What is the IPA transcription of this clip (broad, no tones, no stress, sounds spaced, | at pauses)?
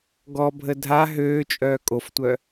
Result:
ɡ ɔ bʱ ə dʱ a ɦ øː t͡ʃʼ œː kʼ o f tʷ œ